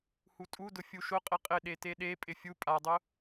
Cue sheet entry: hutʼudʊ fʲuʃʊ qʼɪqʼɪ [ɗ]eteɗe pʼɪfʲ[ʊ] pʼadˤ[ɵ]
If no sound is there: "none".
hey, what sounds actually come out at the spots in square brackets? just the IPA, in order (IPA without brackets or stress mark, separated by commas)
ɗ, u, ʊ